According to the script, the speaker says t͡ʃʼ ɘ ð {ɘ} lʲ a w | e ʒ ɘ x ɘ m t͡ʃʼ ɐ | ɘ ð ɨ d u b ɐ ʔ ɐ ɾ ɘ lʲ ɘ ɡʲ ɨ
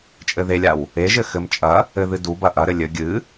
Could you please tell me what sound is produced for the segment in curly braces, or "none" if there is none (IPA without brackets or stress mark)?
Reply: e